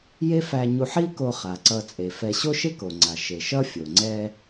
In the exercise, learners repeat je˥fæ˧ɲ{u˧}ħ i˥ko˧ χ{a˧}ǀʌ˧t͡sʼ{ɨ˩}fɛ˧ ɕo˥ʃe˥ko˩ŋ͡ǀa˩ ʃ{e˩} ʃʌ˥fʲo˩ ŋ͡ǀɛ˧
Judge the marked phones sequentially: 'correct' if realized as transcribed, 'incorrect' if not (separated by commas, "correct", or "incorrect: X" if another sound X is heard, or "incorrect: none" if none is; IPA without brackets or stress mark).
correct, incorrect: a˩, incorrect: e˩, correct